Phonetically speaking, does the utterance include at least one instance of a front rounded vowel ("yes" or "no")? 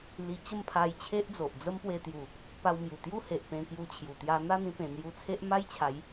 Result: no